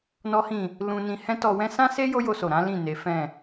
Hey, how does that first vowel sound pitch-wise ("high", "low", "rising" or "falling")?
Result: high